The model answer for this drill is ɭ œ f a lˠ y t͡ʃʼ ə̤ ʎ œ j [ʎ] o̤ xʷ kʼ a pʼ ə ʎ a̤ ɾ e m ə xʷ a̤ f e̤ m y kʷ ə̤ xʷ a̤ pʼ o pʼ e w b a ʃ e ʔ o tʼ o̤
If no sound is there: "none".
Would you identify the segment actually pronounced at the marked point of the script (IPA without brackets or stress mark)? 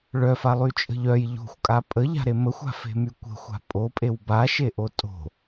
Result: ʎ